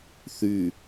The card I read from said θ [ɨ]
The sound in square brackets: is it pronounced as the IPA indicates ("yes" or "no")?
no